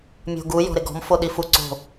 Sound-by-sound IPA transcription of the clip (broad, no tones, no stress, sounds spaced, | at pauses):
mʲ o̤ ɡ u j ɔ̤ ɾ ɪ ɡ ɔ̤ m f o ɗ i f u ǀ o̤